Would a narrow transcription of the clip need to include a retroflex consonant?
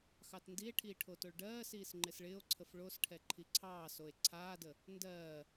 yes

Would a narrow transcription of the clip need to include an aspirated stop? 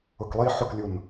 no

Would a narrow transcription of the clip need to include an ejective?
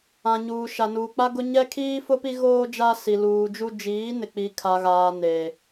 no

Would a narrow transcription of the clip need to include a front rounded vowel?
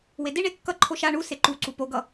no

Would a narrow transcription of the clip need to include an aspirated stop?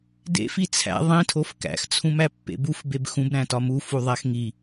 yes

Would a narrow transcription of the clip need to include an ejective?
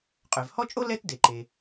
yes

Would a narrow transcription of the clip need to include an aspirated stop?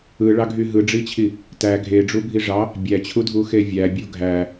yes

